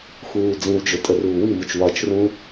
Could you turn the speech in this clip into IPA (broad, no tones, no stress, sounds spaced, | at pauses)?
x uː d͡z ĩ w d͡ʒ ʊ tʼ ə r uː w i m ʊ t͡ʃ w ɒ t͡ʃ r ũ